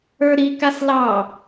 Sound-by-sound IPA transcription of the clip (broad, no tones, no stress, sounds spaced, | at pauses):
ə˞ ɾ i k a s l ɑ